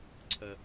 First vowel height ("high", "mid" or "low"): mid